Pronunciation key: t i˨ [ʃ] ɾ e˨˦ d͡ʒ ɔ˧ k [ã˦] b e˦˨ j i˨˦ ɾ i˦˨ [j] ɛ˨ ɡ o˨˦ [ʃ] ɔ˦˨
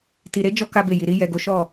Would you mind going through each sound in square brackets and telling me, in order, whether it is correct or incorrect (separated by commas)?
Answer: incorrect, incorrect, correct, correct